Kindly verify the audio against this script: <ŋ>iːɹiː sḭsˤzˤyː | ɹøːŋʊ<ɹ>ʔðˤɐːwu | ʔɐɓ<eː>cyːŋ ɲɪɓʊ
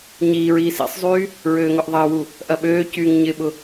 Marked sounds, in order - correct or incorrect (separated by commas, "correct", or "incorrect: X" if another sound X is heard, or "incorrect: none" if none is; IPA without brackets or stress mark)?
incorrect: ɲ, incorrect: none, incorrect: øː